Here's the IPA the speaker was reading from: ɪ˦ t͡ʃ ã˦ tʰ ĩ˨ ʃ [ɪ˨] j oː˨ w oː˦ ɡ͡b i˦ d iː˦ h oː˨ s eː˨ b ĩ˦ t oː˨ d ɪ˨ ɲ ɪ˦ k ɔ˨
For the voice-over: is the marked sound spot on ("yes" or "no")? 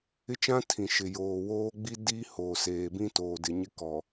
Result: yes